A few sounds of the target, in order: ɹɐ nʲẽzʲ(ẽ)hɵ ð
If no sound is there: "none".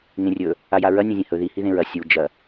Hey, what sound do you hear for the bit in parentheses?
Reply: ẽ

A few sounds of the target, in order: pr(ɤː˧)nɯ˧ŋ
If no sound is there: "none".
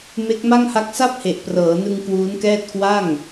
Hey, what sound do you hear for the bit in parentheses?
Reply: ɤː˩˦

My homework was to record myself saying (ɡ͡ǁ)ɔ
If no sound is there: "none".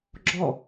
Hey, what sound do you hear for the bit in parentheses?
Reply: ɡ͡ǁ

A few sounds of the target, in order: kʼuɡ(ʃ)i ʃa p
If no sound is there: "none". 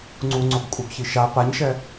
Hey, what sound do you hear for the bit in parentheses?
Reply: ç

